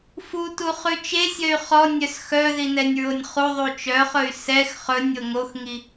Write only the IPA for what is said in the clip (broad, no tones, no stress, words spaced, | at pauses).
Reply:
futu χʉt͡ʃesʲœy̯ χɔ nʲœsxœði nɛnʲɹonʲχuðˤu t͡ʃœχɵy̯ sɛx χɵnʲ oŋoxŋi